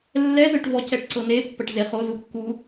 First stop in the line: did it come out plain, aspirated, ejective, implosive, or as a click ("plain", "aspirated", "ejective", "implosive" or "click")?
plain